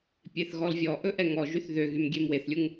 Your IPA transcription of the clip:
pʲeθɣɔlvʲɔʔɵ ʔɛŋɔʒyθ ðøɣym ɡʲemweθlʲuŋ

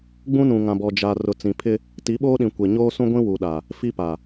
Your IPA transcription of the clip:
ɡ͡bũ˦nũ˨ŋã˨bɔ˨ d͡ʒa˨ rʊ˨t͡sĩ˨ pʰɪ˦ | ti˨˦ɓoː˦ɗĩ˨ kʷe˨ɲoː˦sũ˦ɡʷĩ˦ wu˨ɗa˨ | fi˦pa˨

